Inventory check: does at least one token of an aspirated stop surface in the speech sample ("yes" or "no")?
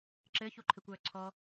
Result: yes